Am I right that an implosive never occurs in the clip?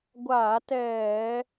yes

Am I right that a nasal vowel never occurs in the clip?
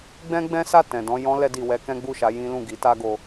no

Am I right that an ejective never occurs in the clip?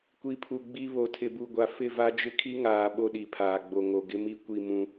yes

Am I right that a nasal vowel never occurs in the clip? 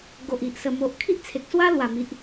yes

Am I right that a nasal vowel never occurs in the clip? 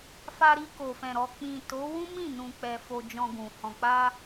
no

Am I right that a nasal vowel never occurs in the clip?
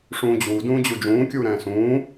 no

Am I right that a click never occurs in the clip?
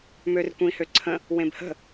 no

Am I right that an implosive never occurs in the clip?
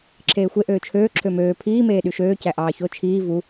no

